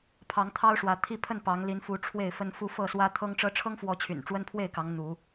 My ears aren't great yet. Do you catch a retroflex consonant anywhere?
yes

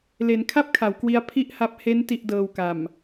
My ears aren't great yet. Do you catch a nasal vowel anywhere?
no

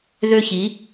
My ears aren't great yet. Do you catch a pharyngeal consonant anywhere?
no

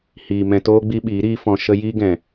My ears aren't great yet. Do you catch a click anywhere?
no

